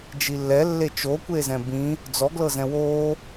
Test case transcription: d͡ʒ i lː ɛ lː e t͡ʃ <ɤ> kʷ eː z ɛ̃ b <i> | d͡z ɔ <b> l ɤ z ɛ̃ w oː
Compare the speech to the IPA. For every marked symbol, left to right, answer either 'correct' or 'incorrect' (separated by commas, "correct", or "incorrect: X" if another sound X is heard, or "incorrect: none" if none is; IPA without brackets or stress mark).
incorrect: o, incorrect: ĩ, incorrect: ɡ